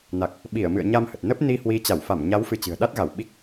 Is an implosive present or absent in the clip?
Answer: present